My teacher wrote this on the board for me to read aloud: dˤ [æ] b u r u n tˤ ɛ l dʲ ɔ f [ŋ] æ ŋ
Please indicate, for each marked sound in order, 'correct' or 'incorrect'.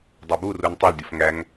correct, correct

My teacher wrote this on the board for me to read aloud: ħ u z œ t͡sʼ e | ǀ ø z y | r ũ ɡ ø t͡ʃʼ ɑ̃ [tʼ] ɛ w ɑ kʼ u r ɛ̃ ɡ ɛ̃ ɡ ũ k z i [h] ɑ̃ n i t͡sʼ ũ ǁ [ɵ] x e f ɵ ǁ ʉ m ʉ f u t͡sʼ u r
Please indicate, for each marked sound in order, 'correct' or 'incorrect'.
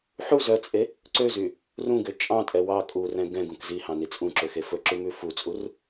correct, correct, incorrect: ø

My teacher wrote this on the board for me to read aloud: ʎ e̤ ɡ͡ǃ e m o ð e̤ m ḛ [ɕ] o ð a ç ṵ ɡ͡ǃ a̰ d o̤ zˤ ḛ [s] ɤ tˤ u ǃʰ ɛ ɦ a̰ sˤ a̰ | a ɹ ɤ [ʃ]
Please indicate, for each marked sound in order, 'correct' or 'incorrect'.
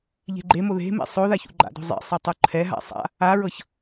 incorrect: sˤ, incorrect: sˤ, incorrect: ç

